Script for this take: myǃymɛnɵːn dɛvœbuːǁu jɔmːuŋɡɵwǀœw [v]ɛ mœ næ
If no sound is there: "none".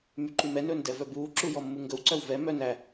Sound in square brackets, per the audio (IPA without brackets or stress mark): v